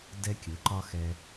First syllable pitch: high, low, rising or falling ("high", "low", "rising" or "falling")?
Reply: high